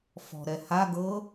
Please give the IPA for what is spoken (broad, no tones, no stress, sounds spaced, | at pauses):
f ɔ̤ ɾ ɛ h a ɡ ɤ